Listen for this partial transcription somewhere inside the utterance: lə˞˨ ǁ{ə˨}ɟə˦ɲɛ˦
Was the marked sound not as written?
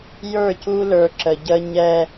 no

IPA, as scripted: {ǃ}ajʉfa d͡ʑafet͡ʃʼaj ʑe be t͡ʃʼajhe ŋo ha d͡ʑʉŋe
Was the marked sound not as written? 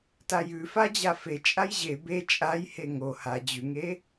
yes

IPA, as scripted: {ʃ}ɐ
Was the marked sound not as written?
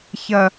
yes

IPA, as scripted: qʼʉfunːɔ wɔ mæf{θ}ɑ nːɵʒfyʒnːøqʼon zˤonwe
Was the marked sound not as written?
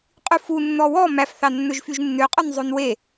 no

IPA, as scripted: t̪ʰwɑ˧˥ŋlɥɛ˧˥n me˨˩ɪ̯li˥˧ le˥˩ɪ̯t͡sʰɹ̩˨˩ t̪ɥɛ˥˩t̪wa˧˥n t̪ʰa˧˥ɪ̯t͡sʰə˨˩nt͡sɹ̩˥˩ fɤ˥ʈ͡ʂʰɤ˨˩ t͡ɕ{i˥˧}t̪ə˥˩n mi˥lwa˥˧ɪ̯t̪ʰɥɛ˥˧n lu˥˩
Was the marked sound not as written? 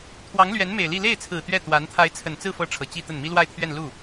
no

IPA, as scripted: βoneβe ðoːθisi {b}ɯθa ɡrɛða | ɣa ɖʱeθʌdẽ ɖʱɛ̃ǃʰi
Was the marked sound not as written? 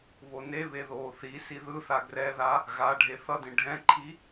yes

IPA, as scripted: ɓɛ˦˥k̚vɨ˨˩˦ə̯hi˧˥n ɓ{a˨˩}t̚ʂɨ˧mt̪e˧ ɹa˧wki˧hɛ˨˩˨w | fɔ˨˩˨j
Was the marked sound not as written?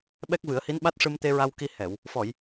yes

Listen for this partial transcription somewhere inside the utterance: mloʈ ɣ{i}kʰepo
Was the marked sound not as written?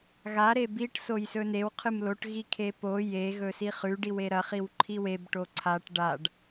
no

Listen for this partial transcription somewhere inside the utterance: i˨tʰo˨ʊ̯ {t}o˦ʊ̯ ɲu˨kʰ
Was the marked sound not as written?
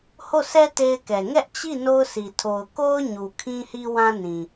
yes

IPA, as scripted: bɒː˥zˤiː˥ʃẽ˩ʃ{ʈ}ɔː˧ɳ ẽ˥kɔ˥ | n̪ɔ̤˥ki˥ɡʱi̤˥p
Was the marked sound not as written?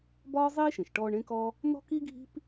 no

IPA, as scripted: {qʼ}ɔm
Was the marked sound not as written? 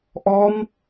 yes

